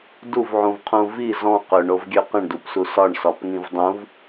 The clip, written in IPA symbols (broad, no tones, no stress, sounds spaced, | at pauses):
d u v ʕ ũ v qʰ ũ v i z ɔ̃ q ø ɳ o v ɡʲ ø q ə̃ ɳ d u p s u s ɒ ɳ s ɒ p ŋ ĩ v dˤ ũ v